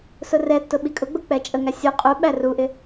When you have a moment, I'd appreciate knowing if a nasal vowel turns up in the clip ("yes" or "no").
no